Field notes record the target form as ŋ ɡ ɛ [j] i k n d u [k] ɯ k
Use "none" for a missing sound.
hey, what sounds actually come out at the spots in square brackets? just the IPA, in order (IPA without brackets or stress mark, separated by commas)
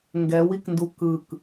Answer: w, k